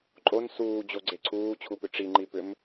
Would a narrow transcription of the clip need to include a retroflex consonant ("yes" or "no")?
yes